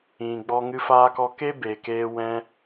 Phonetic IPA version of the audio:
ĩ˨ ɡ͡bɔ˧ŋɨ˧ faː˧kɔ˧ke˦ be˨keː˧wɛ̃˧

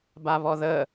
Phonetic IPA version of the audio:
baβɔðə

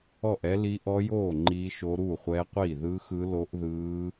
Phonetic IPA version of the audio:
ɔ˥˨ʔɛ˦˥li˦˥ ʔɔ˦˥joː˥˨ ŋ͡ǃiː˦˥ʃo˦˥ ɾuː˥˨χʷɛː˦˥qʷiː˥˨ ðɯː˦˥xɯ˦˥lo˦˥ʔ ðɯː˦˥

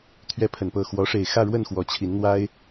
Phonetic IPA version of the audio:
t̪ʰɥɛ˨˦ pʰə˨˩npɤ˥˨ xwɔ˨˦ʂe˨˩ɪ̯xä˥˨ ɻwə˥˨nxwɔ˨˦ t͡ɕʰi˨˦nn̪wa˦ɪ̯

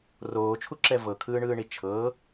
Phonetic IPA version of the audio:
roːt͡ʃʰuǁɛ vɤkʰɯːɳɯːɳi t͡ʃʰɤ

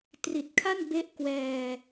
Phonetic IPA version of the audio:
tri˨˩t̚kʰa˥˩nbe˦˥ʔ kwɛː˧

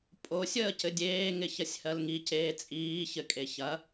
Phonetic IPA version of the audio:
pʼo sʲəːcɘdʲeː ŋɪçɐsʲhɜlŋi ceːt͡sʼiː çɘkʼeçɐ

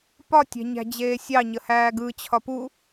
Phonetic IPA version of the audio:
pɒ tʲæ̤ɲæ̤d͡ʑeːsʲɑ ɲəhæːɡɯ t͡ɕʰɒpu

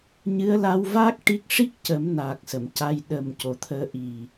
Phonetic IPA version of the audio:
ɲɨ˧˥ə̯ la˧wvaː˦˥k̚ ʈi˦˥k̚ ʂi˦˥k̚cə˨˩˦mna˨˩k̚ sə˨˩˨mca˧j ɗə˨˩m co˨˩t̪ʰəː˧ʔi˨˩

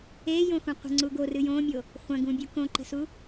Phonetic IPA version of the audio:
ejõxũ qʷə̤ŋ͡ǀu ɡorɨ jõmʲo | χʷɐ̃ɡũbʲu kõǃə̤su

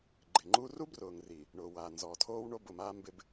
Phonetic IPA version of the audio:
ɡ͡ǃɪ˨ŋ͡ǃu˦ ru˦brʊː˨ŋri˨ | ɳʊː˨waː˨ nzɔ˨tʰoː˦wɳo˦ bʊ˦˨maː˦ mbɪ˨b

